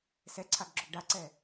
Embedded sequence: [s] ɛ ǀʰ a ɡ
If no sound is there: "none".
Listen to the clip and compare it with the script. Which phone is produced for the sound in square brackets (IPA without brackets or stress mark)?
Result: s